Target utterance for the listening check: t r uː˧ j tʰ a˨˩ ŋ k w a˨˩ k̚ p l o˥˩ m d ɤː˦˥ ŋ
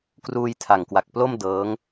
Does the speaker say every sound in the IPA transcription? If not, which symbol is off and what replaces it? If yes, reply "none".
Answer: t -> k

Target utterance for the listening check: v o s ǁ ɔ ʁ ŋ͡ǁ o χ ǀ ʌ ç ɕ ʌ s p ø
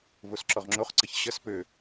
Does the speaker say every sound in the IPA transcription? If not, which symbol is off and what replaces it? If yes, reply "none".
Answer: none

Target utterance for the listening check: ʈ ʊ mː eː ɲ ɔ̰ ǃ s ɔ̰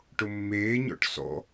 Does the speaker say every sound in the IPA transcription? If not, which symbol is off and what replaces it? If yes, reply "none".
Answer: ǃ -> ʈ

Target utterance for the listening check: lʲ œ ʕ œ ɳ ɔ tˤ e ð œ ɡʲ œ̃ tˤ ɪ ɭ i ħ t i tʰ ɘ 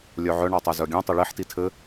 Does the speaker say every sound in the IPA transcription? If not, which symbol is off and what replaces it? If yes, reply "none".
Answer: ð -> z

